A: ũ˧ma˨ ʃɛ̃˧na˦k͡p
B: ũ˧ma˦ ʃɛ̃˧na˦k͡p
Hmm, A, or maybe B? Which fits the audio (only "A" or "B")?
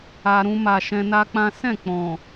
A